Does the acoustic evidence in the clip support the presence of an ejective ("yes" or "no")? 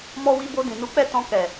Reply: no